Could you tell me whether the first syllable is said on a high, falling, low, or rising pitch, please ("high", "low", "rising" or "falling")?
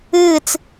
falling